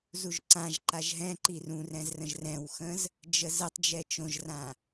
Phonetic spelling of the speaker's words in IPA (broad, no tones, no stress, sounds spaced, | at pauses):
z u ʒ ǀ ã ʒ ǃ a ʒ ɦ ɛ̃ ǃ i r ũ r ɛ̃ z r ə̃ ʒ r ɛ̃ w x ə̃ z | d͡ʒ ə z ə tˤ d͡ʒ ɛ t͡ʃ õ ʒ r ã